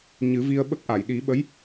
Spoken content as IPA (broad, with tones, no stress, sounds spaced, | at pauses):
ɲ ɨ˨˩˦ v i˧ ə̯ ɓ ə˦˥ k̚ ʔ a˨˩˨ j ɗ i˨˩˦ ɓ ə˧˥ j